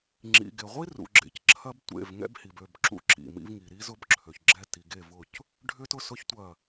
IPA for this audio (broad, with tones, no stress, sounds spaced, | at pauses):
ŋ͡ǁ ḭ˨ ɡ e˨ ʁʷ i˦ r ṵ˨ ɡ͡ǁ ḛ˨ c ǁʰ ɐ˦ b tʷ ḛ˦˨ v ŋ ɛ̰˦ b h i˨ b ø˦˨ b ǁ ṵ˦ ǁ ḭ˨ m ḭ˦ v ŋ i˨ ɾ i˦ z ʊ˦ b ǁʰ ø˨ ç ɡ͡ǁ ɛ˦˨ t i˨ ɡ e˦˨ v ʊ˦˨ c | ɖʱ ʏ˦ t ʊ˦ s ʊ˦ ç tʷ ɐ˦˨